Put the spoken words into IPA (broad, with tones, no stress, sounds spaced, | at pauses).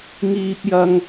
ŋ iː˥ p̚ j ɐ˥ ŋ